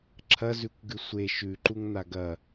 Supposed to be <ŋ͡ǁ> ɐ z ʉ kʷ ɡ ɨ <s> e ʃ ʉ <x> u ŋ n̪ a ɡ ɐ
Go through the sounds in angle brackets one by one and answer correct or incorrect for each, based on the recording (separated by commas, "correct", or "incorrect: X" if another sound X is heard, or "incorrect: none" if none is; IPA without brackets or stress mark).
incorrect: ǁʰ, incorrect: sʷ, incorrect: ǃ